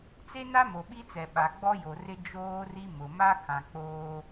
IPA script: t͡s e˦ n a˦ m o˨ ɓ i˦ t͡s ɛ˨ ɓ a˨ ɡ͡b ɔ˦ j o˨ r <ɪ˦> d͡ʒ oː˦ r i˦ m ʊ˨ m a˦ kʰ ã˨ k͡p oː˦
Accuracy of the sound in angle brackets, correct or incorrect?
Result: correct